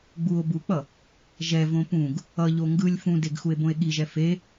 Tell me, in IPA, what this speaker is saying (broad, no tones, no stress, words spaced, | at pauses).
ɡ͡buo̯ buk͡pʌ | ʒɛvõ pũɡ | ʌʎo ŋɡɯlʲ fũdeɡ xue̯bõe̯ɠiʒɛ fe